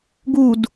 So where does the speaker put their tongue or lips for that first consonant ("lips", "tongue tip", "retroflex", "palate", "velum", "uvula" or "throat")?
velum